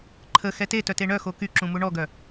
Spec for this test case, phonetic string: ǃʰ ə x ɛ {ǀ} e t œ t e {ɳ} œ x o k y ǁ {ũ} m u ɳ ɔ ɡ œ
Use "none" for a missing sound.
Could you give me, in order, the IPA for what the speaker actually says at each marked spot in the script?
t, ɳ, ũ

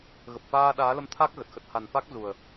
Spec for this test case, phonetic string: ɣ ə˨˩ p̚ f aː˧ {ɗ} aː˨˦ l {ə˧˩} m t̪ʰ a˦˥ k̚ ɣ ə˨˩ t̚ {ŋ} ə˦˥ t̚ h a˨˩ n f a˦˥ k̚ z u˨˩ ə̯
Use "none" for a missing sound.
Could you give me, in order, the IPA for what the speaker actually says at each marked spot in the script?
ɗ, ə˧, x

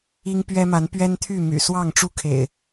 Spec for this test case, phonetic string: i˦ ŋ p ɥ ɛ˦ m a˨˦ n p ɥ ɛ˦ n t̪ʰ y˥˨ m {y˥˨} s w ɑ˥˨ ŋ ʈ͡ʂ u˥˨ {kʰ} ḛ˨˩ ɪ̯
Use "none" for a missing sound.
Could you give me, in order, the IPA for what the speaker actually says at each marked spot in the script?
y̰˨˩, kʰ

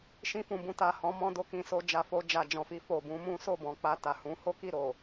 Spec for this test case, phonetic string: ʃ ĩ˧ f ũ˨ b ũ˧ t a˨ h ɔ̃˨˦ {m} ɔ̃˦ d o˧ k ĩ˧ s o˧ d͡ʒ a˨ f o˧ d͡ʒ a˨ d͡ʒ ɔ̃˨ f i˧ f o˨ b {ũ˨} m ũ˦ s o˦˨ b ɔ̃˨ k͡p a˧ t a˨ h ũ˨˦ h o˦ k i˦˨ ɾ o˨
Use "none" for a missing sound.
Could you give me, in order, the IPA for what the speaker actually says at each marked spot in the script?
m, ũ˨˦

